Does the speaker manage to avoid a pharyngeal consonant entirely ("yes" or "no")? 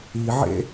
no